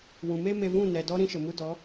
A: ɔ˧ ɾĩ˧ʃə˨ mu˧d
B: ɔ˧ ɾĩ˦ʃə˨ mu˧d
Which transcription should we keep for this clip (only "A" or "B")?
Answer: A